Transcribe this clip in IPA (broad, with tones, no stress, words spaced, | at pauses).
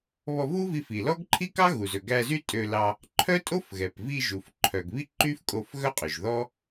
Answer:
βɔ˧vu˥vi˧f i˩lɔ˥ɡǃʰi˥ kɑ˥ɣu˩zɵ˩ ɡæ˧zy˥ tʼø˧lɑ˧ | ǃʰœ˥tʼo˥fɣɛ˩pvi˧ ʒu˩f ǃʰœ˩ɡβi˥ǃy˥fkʼo˧f ɣœ˥qʼø˩ʒðɔ˥